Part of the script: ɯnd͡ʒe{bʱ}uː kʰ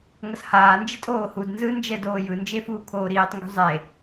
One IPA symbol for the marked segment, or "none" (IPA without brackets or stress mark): f